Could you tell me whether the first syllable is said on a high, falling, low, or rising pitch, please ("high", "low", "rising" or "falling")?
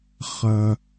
low